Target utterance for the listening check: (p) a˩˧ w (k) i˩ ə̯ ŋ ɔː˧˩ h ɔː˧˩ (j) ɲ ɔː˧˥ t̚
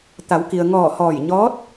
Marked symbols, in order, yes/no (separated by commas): no, yes, yes